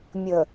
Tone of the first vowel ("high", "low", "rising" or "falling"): low